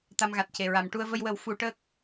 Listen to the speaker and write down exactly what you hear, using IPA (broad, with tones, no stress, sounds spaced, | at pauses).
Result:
t̪ a˧ m ɣ a˨˩ t̚ c e˨˩ ɹ a˨˩˦ m ʈ u˧ ə̯ v ə˧ j w ə˨˩˦ w f u˨˩˦ ʈ əː˦˥ k̚